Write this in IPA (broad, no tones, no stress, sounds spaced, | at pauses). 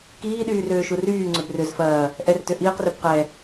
k iː ɗ yː r øː ʃ u r yː ŋ͡ǀ ø b r ʏ z f ɐː | ʔ ɛ r t ø ʔ iː q r ø b q ɛ